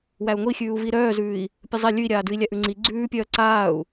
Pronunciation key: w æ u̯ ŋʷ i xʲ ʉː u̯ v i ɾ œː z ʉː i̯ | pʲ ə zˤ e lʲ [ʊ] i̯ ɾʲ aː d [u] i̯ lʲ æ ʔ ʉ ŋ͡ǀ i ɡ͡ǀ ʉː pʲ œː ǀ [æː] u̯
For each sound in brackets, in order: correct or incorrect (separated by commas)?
incorrect, incorrect, incorrect